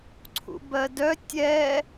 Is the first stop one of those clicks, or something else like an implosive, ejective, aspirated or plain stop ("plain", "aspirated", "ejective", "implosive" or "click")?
click